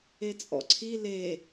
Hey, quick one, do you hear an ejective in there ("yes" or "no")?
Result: yes